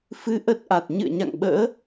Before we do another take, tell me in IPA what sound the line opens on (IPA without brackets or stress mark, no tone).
f